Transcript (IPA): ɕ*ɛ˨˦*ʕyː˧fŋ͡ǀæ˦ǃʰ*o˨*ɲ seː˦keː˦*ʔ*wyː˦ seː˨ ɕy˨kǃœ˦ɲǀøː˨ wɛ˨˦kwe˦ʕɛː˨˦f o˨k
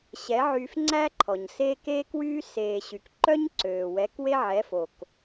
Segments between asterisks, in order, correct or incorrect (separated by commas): correct, incorrect, incorrect